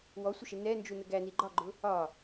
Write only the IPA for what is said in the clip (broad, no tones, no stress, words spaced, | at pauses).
wɔsʷəʃɪ nɛnd͡ʒunə ɡæni ɡ͡ǃɒɡ͡ǃʊ | ɒ